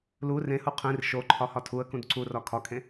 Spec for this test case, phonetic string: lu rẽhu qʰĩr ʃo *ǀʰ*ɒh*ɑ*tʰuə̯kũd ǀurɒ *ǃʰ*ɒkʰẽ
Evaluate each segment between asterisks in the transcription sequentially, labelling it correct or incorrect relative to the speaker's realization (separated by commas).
incorrect, incorrect, incorrect